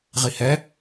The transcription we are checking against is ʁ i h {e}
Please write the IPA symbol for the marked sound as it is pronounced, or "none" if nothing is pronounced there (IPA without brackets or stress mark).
ɛ